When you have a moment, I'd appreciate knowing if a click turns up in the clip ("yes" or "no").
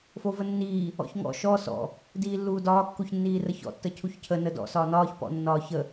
no